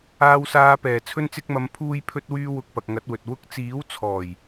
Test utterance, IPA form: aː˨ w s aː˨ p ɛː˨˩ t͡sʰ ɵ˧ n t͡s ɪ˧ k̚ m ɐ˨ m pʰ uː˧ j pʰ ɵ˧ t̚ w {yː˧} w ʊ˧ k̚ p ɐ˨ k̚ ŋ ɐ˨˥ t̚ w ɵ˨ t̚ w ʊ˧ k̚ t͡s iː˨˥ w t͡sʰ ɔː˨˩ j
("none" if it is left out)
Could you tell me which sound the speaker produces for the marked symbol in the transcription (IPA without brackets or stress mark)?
yː˧